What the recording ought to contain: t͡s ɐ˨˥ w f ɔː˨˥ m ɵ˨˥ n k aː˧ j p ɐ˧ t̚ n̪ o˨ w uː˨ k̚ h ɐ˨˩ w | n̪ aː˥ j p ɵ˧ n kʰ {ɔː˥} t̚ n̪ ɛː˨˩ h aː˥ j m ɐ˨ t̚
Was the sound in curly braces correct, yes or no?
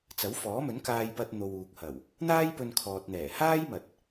no